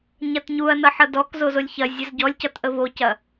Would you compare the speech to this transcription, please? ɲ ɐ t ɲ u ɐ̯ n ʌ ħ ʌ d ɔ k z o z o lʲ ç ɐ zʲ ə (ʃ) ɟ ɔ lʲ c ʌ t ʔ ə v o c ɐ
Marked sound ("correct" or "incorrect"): incorrect